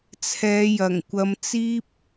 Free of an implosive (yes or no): yes